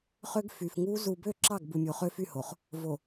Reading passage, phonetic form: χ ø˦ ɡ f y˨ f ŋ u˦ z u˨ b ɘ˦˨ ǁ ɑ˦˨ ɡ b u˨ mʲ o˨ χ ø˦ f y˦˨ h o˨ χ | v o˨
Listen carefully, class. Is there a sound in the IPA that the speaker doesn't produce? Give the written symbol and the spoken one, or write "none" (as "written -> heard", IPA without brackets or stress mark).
ɘ˦˨ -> ø˦˨